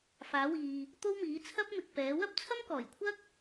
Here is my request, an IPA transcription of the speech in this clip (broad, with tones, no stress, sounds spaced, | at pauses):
f aː˨˥ w iː˨ | t̪ o˥ w m iː˨˥ t͡sʰ ɐ˥ p̚ m ɪ˨ k̚ p ɛː˨˥ w ɐ˥ p̚ t͡sʰ ɐ˥ m k ɔː˨˩ j kʷʰ ɐ˥ k̚